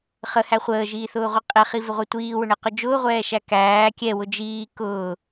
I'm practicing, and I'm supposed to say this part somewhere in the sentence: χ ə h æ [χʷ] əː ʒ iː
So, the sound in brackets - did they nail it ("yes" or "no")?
yes